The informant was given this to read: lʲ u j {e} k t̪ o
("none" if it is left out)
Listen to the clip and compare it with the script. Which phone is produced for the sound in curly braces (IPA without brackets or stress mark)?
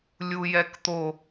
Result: ɛ